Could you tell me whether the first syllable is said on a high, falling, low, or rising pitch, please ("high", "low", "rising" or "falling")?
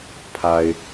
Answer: low